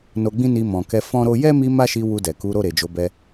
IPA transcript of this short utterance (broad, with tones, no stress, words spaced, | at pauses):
no˧ɡ͡bĩ˦ni˧ mɔ̃˨kɛ˧ fɔ̃˦ɾo˦ jɛ˦mi˧ ma˦ʃi˧ wu˧dɛ˨ ku˨˦ ɾo˦˨ɾe˨d͡ʒo˨˦bɛ˧